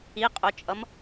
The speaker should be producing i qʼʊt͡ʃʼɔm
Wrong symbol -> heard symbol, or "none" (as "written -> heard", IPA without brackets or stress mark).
ɔ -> ʌ